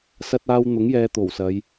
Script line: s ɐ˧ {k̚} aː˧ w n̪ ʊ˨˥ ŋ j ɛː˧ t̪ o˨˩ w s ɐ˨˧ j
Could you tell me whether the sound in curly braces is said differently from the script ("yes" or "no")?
yes